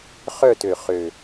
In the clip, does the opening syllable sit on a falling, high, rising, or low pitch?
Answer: falling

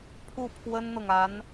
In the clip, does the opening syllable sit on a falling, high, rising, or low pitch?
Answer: falling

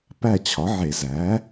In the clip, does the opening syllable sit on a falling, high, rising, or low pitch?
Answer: falling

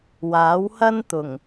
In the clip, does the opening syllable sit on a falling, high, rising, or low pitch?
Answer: rising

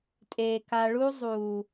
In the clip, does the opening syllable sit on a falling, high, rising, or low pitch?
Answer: low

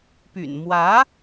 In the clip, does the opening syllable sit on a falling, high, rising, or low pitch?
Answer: low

